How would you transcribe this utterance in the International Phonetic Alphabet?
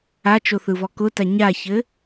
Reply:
a t͡ʃ o θ ɯ v ɔ k ʊ t a ɲ a ç ɘ

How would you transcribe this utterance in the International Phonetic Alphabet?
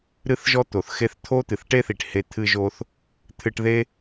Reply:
ɾ ɨ˥ θ ʒ ɔ˥ t̪ o˩ θ x e˥ θ t̪ʰ o˥ t̪ ɨ˩ θ ʈ e˥ θ i˩ ʈ h e˥ t̪ʰ ɨ˥ ʒ o˥ θ | t̪ʰ ɨ˥ ʈ ð e˥

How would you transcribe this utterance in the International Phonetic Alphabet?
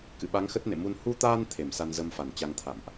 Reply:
k ɨ̰˧˨ ɓ a˨˦ ŋ x ə˦˥ t̚ n ḛ˧˨ m u˧ n h u˧ t̪ aː˧ n t̪ʰ e˧˩ m s a˧ n z ə˧ m f a˧˩ n t͡ɕ a˧ ŋ t̪ʰ a̰˧˨ m ʔ

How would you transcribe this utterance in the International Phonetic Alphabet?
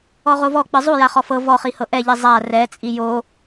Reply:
ɔ ʁ o v ɔ k͡p ɯ zˤ u j a χ ɔ f ɤ v ɔ χ i h ɤ ʔ ɛ ʎ i zˤ a r ɛ t͡sʼ i j o

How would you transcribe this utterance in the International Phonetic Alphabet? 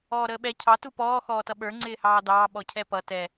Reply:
ɔː ɾ əː ɓ ɛ cʰ ɑ t u p ɔː x ɔː t ʌ ɓ ə˞ ŋ͡ǀ ɪː h ɑː d ɑː ɓ ɔ cʰ ɛ p ʌ t ɛ

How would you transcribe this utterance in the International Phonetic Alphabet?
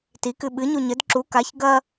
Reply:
t i k ɨ ɓ ɨ ɲ u ɲ ɘ d ǁ u k a ç ɡ ɐ

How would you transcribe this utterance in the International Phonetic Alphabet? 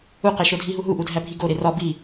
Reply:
u q e ʃ o dʱ i ɦ u ɦ u ʔ u dʱ æ bʱ i ɡ o ɾ e r ɒ b i

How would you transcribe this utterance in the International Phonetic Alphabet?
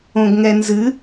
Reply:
õ ɡ ŋ ɛ n z ɨ

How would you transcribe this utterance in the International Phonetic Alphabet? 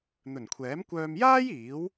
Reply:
n̪ ɵ˨˩ n kʷʰ ɛː˨˥ m kʷ œː˧ m j aː˥ j iː˨˥ w

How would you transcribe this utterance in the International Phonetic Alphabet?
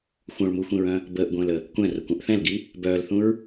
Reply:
xʷ œ̃ ɭ m u xʷ ĩ ɹ œ̃ | b əː ʔ ɡʷ ə̃ː l ə | kʷ ɛ̃ r ə kʷ œ̃ ʔ θ ɛ̃ l ɡ i | b œː l θ ũ ɹ

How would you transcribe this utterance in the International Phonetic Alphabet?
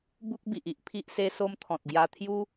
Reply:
b u˦ k̚ b i˨ ʔ i˦ ʔ pʰ i˦ ʔ s e˦ s o˦ m t̪ʰ ɔ̃˨ t̚ ɡ j a˧ t̪ʰ j u˦

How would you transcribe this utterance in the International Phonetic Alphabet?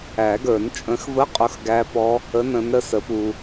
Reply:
æ˨˩˦ ɡ ə˞˨˩˦ n t͡ʃʼ ə̃˨˥ x v ə˧˥˧ qʼ ʊ˧˥˧ x ɡ æ˦˥ p ɔ˦˥ | ə˧˥˧ n ə̃˨˥ n ɾ ə˨˥ s ə˨˥ p u˧

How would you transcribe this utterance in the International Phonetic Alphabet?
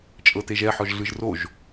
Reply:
t͡ʃʼ ɤ t e ʒ ɛ ħ ɔ ʒ ɮ ɯ ʒ r o ʒ

